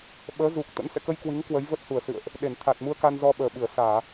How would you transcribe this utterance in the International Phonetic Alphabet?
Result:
ɓ əː˨˦ z u˨˩ k̚ t̪ ə̰˧˥ n s ɛ̰˧˨ k ə˧ j k w i˨˦ ŋ k w ə˨˦ j v ə˦˥ t̚ h u˧˩ ə̯ s ɨ̰˧˨ ə̯ ʔ | ɗ e˧˩ n t̪ʰ a˨˩ t̚ m u˧ ə̯ k a˧ n z ɔ˧ ɓ əː˨˩ ɓ ɨ˧˩ ə̯ s aː˧˩˨

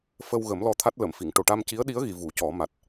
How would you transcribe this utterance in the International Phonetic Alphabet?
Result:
f ə˧ w ɣ ə˨˩˦ m l ɔ˧ t̪ʰ a˦˥ t̚ l ə˨˩˨ m f i˨˩˨ ŋ ʈ o˨˩ ʈ a˧ m c i˧˥ ə̯ ɗ i˧˥ ə̯ ɣ i˨˩˨ v u˨˩˦ c ɔ˨˩˦ m a˨˩ t̚

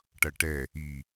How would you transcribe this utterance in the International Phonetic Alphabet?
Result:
ʈ ʌ ʈ ɛ | i

